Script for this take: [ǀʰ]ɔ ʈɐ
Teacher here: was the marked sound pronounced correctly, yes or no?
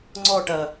no